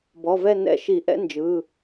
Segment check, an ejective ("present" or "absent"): absent